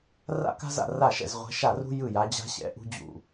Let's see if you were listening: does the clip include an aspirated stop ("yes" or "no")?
no